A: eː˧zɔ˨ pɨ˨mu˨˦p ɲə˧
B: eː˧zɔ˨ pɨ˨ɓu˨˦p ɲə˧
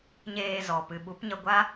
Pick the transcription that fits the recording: B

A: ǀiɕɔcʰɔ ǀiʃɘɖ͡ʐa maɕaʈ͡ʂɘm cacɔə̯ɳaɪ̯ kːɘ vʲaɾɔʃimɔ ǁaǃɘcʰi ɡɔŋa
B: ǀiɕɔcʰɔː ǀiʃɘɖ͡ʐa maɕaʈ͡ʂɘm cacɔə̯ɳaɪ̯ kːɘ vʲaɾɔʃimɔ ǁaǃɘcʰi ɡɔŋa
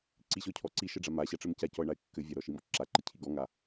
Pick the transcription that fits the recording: A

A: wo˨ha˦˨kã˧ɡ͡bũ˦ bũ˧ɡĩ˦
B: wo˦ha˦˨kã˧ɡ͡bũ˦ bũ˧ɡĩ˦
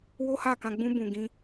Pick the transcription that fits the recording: B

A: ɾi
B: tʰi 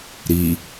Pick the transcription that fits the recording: A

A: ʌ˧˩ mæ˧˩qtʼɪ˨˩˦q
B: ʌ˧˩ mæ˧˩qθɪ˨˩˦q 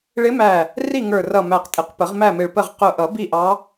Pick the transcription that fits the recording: A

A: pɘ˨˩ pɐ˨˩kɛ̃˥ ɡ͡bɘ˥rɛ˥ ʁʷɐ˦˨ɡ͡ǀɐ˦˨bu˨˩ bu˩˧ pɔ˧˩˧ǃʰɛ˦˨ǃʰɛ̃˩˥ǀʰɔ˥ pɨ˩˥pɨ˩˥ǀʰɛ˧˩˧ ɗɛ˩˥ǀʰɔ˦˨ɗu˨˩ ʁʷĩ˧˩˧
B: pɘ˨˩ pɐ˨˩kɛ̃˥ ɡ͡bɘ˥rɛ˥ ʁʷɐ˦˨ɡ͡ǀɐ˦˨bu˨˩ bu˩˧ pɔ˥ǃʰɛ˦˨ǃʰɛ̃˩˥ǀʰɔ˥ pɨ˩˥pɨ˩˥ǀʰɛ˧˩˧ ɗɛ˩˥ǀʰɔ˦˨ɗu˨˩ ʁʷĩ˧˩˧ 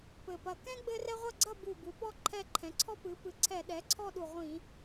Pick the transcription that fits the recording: B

